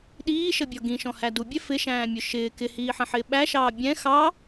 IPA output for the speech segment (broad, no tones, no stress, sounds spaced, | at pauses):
ɗ iː ʃ ə bʲ ɔ ɡ ĩ ʃ ɔ̃ h æ d u bʲ ɛ f ɪ ʃ æ̃ː mʲ ʊ ʃ ɪː k ɪ h iː ħ ə̃ ħ ɪː ɓ æ ʃ ɑː bʲ ɛ̃ x ɑ